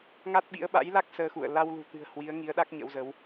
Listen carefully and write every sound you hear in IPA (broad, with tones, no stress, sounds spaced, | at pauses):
ŋ a˦˥ t̚ ɓ ḭ˧˥ ə̯ ɓ a̰˧˥ j l a˦˥ k̚ s əː˧ x ṵ˧˨ ə̯ l a˧ w l ṳ˨˩ t̪ ɨ̤˨˩ ə̯ h w i˨˦ ə̯ ŋ i˨˦ ə̯ ɗ a˦˥ k̚ ɲ ə̰˧˥ w z ə˨˦ w